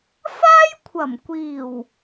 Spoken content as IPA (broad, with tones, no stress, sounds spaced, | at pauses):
f aː˥ j kʷʰ ɐ˨˩ m kʷ iː˨˩ w